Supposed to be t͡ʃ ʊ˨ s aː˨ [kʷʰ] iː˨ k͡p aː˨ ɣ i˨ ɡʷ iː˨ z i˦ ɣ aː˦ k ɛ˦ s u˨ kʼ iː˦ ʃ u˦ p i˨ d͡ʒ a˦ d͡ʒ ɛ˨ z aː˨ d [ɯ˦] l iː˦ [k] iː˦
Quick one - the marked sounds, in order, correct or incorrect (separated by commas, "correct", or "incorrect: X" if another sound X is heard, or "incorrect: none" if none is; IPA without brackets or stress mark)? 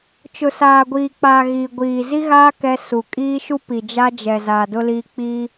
incorrect: ɡʷ, incorrect: ʊ˦, incorrect: k͡p